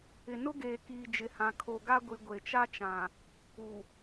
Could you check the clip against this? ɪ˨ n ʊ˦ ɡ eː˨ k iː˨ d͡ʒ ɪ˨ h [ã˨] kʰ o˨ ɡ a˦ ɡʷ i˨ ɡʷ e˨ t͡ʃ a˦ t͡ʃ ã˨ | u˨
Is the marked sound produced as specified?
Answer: yes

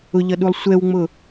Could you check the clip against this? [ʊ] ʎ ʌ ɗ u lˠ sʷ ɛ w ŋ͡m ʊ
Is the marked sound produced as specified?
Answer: yes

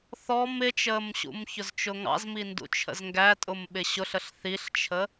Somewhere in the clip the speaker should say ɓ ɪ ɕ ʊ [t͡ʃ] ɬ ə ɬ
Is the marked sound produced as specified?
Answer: no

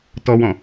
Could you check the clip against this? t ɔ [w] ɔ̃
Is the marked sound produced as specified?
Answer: yes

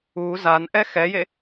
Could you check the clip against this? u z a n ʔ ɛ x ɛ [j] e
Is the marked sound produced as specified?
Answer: yes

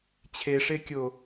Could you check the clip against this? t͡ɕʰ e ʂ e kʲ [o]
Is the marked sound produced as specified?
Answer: yes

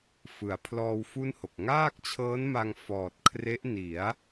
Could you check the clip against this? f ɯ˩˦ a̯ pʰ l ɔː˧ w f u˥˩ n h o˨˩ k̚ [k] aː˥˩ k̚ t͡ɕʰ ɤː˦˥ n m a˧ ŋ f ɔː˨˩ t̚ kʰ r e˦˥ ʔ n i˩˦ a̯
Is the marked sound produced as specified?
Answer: no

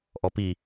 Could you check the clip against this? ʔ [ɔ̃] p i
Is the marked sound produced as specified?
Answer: no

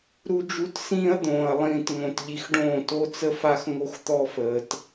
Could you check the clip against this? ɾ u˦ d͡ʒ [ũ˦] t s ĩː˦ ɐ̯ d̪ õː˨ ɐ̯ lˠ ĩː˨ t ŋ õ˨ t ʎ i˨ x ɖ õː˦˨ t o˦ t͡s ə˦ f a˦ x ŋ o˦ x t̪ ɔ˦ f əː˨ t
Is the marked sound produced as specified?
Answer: no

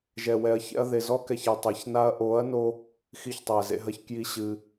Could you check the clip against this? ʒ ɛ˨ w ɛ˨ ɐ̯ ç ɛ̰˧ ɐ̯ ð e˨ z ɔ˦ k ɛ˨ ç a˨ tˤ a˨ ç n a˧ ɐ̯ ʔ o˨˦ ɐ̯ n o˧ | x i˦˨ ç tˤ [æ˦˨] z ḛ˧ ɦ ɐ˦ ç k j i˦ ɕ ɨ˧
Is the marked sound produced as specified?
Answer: no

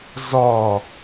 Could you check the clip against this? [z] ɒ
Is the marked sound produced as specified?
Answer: yes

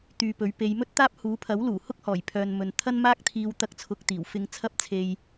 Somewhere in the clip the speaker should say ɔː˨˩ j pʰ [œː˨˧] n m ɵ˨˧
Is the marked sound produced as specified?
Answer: no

